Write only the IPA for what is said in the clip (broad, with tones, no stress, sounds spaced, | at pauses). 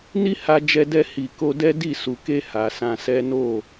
n i˦ h a˧ d͡ʒ ɛ˧ d ɛ˧ h i˨ k o˧ d ɛ˦ d i˦˨ s u˨ k e˧ h a˨ s ã˧ s ɛ˦ n o˦˨